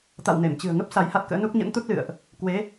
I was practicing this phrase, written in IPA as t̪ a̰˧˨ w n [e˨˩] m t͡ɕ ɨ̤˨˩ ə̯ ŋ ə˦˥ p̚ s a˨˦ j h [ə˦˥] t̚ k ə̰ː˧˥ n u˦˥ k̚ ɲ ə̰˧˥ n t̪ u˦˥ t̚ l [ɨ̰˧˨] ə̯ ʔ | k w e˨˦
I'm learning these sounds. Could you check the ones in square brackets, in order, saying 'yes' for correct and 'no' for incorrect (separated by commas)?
no, no, yes